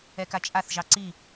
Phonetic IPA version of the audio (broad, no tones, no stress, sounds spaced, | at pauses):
ɛ k a t͡ʃʼ a θ ʒ ɑ ǀ i